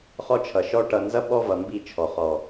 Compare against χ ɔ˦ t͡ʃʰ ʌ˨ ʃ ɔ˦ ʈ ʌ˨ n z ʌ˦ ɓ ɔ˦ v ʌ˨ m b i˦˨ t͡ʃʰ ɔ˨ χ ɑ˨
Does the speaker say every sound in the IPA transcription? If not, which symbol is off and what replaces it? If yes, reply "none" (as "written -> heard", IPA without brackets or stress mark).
ɑ˨ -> ɔ˨